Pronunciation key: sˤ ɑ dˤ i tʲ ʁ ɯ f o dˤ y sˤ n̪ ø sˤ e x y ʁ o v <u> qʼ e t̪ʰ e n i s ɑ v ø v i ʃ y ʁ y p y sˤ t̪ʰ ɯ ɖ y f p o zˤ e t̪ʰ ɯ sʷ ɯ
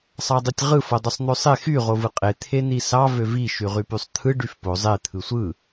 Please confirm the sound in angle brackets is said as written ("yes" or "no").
no